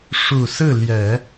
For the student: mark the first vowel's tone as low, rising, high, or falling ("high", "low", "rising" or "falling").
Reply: low